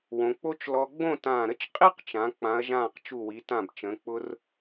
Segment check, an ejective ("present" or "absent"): present